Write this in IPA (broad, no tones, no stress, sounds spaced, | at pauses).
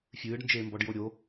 fʲ ɨː ɖ n d͡ʒ eː m b ɔ ɖ j o ɾʲ o